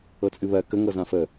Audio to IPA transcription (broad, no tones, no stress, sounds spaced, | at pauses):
ɤ t͡sʼ ɨ β ɜ k ə ŋ ɤ z ã f ə